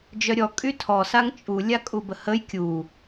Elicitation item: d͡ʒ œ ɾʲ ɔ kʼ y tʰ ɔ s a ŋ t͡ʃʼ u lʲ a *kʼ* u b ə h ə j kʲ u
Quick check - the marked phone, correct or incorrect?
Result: correct